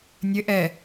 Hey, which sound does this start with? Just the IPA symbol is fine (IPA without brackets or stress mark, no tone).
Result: nʲ